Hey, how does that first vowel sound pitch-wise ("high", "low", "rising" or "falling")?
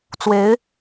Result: rising